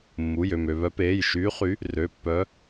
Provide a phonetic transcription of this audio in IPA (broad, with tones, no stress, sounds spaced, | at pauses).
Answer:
mː u˩˧˩ j ø˧˩ m ø˧˩ β œ˨˦ p eː˩˧˩ j ʃ yː˨˦ χ y˨˦ | r ø˩˧˩ pː œ˨˦